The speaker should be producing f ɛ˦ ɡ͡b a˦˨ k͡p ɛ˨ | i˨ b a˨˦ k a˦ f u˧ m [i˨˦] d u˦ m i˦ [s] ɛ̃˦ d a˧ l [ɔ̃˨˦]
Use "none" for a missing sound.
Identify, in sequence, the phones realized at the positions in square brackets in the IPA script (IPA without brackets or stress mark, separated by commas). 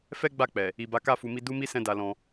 i˦, s, ɔ̃˧